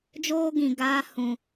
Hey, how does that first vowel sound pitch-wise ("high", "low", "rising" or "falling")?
high